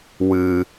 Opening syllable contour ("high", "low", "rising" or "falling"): low